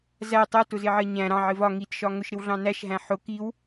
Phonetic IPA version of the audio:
z æ tˤ ɜ t ʊ z ɪ ʕ ɜ ɲ æ̃ ɾ ɑ̃ ʕ ɪ v ɒ ŋ i t ʃ ɒ ŋ ʊ ʃ ɾ ɪ w ɮ ɑ̃ n æ ʃ ɦ æ̃ ħ ʊ k i w

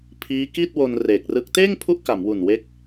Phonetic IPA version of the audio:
pʰ iː˦˥ k i˥˩ t̚ w o˧ n r eː˨˩ k̚ r ɯ˦˥ k̚ t eː˥˩ ŋ pʰ u˦˥ ʔ k a˩˦ m w u˨˩ n w e˦˥ k̚

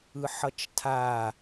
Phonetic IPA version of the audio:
ɯ ħ ʌ t͡ʃ tʰ a

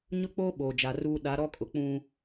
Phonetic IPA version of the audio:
ɲ ʊ˦ k͡p oː˦ ɓ oː˨ d͡ʒ a˨ r uː˦ ɗ a˨˦ ɾ ɔ˦ kʼ ʊ˨ k͡p ũ˦

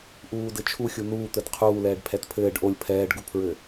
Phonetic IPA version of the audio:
ʔ uː d ɘ t͡ʃʰ u xʲ u n uː t̪ ɘ d qʰ uː l ɛː ɖ pʰ ɛ t pʰ ɘː ɖ ʔ o lʲ pʰ ɛː ɖ ɡ u pʰ ɹ ɘ

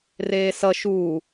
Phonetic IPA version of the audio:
r eː s ʌ ʃ uː

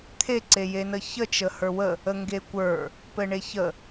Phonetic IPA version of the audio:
t̪ʰ e ǀ e j e n ə ç ə t͡ʃ ə h ə˞ w ə | ə ŋ ɡ e kʷ ə˞ | p ɘ ɳ e ç ə

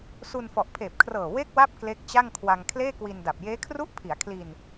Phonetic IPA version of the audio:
s u˧ n f ɔ˨˩ ʔ pʰ eː˨˩ p̚ kʰ r ɤː˨˩ w e˥˩ k̚ w a˥˩ p̚ k l e˦˥ k̚ t͡ɕ a˥˩ ŋ kʰ w a˧ ŋ kʰ l eː˥˩ k w i˧ n d a˨˩ p̚ j eː˦˥ kʰ r u˥˩ ʔ pʰ i˩˦ a̯ kʰ l i˧ n

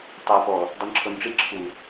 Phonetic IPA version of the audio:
tˤ ɤ p ɔ | dˤ ɯ n ǁʰ o n ʈ͡ʂ i ǁʰ u

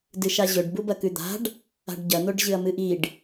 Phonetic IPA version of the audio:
d ɨ ʃ a ʑ ɵ ɖ b u b ɐ k ʉ d̪ a̤ ɖ | a̤ ɖ ɟ ɐ n̪ o ɖ ʑ ɨ ɐ̯ m ɨ ʔ i ɖ

